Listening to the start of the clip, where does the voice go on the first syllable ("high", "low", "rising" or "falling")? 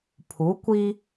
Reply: rising